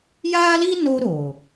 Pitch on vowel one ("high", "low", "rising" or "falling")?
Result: high